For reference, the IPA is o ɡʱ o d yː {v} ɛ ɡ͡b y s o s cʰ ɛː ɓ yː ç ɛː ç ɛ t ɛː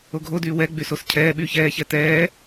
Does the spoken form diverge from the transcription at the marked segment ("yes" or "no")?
yes